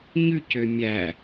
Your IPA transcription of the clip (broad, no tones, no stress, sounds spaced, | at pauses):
ɲ ʉ c ø mʲ æ